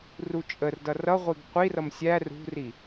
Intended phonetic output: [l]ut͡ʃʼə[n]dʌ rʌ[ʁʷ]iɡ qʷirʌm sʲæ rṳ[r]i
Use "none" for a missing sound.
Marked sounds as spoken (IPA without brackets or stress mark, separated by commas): r, r, ʁʷ, r